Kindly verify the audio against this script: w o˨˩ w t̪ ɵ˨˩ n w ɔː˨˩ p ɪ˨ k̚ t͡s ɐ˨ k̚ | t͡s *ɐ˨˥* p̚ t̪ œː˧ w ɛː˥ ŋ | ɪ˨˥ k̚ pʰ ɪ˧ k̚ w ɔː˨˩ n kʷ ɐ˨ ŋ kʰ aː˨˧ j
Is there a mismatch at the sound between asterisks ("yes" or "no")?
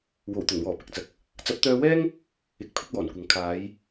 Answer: no